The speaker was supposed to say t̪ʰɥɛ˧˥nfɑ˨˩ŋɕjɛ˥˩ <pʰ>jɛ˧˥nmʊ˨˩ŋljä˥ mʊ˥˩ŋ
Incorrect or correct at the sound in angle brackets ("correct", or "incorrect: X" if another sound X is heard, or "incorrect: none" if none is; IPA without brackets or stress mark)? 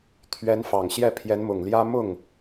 correct